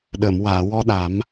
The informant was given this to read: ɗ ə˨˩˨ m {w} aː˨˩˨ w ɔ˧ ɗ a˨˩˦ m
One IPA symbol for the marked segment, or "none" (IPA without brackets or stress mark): w